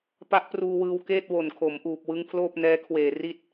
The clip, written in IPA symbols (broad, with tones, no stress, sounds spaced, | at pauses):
p a˦˥ ʔ p r uː˧ w ɯː˧ w k eː˥˩ t̚ w o˨˩ n kʰ o˩˦ m ʔ uː˨˩ p̚ w ɯ˦˥ ŋ pʰ l oː˥˩ p̚ n ɛː˦˥ kʰ w eː˨˩ r i˦˥ t̚